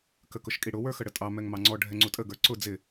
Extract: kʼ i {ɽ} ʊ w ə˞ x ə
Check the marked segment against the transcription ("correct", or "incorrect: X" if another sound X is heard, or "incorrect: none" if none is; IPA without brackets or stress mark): correct